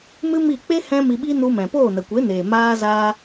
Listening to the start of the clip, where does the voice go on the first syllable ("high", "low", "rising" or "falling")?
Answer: high